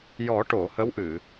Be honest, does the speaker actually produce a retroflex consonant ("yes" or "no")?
yes